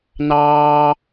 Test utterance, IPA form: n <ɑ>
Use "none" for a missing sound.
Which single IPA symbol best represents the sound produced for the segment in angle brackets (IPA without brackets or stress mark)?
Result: ɑː